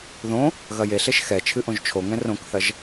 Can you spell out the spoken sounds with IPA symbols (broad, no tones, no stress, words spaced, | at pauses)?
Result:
ðõ | ɣɐjeɬeʃ xɛ t͡ʃʰɨʔõʒt͡ʃʰoŋɛ̃ rõkθɐʒ